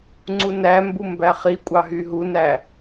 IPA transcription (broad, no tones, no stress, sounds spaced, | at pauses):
ŋ͡ǀ u n æ m b u m b æ χ i kʷʼ ɑ ɦ y ɦ u n æ